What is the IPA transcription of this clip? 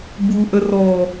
b u ʔ ə r ɔ

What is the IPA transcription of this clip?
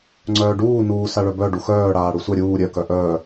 ŋ͡ǀ œː ɖ uː n uː s a ɭ œ b œ ɖ u x œː ɽ aː ɽ u sʷ ɛ ɾʲ uː ɾʲ œ k œ ʔ œː

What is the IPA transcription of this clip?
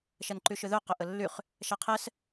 ʃ ɐ n ǃ y ʃ ʏ ð œ q ʏ ʔ ə lː y χ | ʃ a qʰ ɛ s

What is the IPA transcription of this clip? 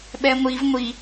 ɓ ɛ ŋʷ i v ŋʷ i

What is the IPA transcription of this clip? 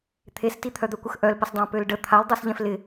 t̪ʰ e s t i t̪ʰ œ d̪ œ kʷ ə x ʔ œ l p ə s dˤ ã p ø l ɖ ə t̪ʰ a l dˤ œ s ʎ ɛ̃ f l ɪ

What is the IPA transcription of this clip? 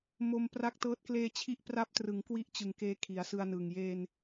m o˧ m p r a˦˥ k̚ t ɤː˦˥ t̚ k l eː˧ t͡ɕʰ i˦˥ ʔ p r a˦˥ p̚ t r ɯ˩˦ ŋ k w i˥˩ ʔ t͡ɕ ɯ˨˩ ŋ k eː˦˥ kʰ i˩˦ a̯ s ɯ˧ a̯ n ɯː˨˩ ŋ j eː˧ n

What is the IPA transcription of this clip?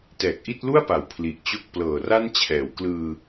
t ɛː˨˩ k̚ ʔ i˥˩ t̚ l u˥˩ a̯ p a˩˦ w pʰ l i˨˩ ʔ t͡ɕ o˥˩ k̚ p l ɤː˨˩ r a˥˩ n t͡ɕʰ ɛː˩˦ w k l ɯː˧

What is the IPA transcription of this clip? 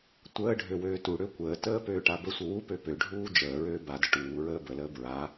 tʷ əː ɖʱ ø w øː t u ɽ ø kʷ əː t əː p øː ʈ a b ə sʷ ə w u p ø p ø ɖʱ uː d͡ʒ əː ɹ øː b a d ə ʈ uː ɹ əː b ə l əː b ɹ a

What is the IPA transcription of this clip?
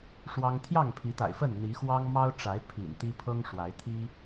ʂ w ɑ˦ ŋ t̪ʰ j ɑ˥˨ ŋ pʰ i˨˦ t̪ a̰˨˩ ɪ̯ f ə˥˨ n n̪ i˨˦ x w ɑ˦ ŋ m ɑ˦ ʊ̯ ʈ͡ʂ a˨˦ ɪ̯ pʰ ḭ˨˩ n t̪ i˦ pʰ ɤ˦ ŋ ʂ w a˨˦ ɪ̯ t̪ʰ i˦

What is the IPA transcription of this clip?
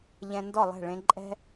ʎ ɛ̃˧ n d ɔ˦˨ lˠ ɛ̤˦˨ ɭ ẽ˧ ǃʼ ɛ̤˦

